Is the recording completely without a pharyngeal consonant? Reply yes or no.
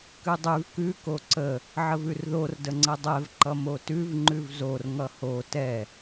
no